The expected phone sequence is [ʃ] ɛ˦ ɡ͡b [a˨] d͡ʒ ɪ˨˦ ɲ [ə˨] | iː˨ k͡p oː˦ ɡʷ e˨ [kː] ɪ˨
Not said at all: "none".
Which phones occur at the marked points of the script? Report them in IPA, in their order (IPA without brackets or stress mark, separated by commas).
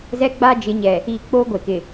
z, a˦, ɛ˨, k